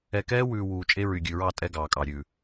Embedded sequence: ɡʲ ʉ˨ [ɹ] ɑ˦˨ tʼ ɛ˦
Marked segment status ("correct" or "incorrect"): correct